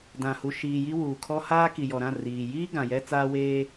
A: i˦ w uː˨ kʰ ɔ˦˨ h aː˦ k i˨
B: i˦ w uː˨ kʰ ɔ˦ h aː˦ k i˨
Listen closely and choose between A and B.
B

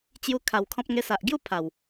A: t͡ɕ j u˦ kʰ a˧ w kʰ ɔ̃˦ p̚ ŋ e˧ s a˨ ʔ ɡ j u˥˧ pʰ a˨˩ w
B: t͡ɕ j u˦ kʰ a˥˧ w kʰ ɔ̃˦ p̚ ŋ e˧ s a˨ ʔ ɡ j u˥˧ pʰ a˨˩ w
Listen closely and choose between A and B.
A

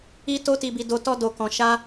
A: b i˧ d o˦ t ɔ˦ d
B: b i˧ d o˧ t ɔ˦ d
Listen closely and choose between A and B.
B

